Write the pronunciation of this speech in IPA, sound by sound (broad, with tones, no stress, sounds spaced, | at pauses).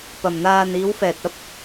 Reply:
p ɐ˨ m n̪ aː˧ n iː˨˧ w f ɛː˨ t̚ ɐ˥ p̚